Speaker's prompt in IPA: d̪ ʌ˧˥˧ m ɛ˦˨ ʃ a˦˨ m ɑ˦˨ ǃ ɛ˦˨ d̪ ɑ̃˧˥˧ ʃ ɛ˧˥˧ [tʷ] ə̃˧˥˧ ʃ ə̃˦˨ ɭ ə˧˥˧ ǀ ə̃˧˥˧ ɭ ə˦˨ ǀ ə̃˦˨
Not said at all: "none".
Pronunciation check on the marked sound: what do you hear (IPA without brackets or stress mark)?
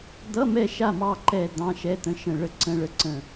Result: t̪